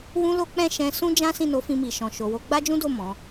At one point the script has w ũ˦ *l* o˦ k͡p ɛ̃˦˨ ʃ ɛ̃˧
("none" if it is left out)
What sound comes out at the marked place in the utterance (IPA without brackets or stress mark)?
l